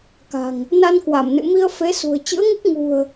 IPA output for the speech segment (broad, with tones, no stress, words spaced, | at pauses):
ka̤˨˩ŋ | na˧nkwa˧˩m nɨ̰˧˨mi˧ə̯ fe˨˦sṳ˨˩ə̯ t͡ɕɨ̰˧˥ə̯ŋɨ˦˥k̚ ŋṳ˨˩ə̯